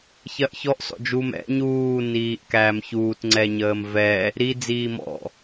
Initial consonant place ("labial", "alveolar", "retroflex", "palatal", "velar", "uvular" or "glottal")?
palatal